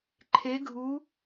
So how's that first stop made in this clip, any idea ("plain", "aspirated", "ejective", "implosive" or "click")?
click